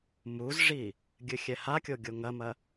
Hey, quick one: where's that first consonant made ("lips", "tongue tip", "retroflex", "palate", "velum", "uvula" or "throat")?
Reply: lips